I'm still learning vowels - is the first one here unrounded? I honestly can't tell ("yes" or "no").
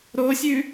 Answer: no